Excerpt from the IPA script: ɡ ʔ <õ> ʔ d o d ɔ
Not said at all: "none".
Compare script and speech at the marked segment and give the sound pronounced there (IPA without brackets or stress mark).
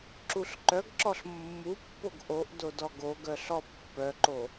o